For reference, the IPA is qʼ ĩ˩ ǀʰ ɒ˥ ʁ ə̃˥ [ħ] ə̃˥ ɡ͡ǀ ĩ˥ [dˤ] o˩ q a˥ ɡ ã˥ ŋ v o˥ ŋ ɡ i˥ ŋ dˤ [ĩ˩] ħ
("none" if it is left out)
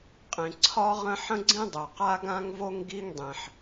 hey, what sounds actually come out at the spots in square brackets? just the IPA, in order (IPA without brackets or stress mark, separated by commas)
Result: ħ, dˤ, ĩ˩